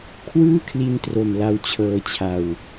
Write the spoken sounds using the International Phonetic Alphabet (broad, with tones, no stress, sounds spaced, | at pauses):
kʰ w ɯː˥˩ kʰ l i˧ n t r o˨˩ m l a˧ w t͡ɕʰ ɤː˧ t͡ɕʰ a˧ w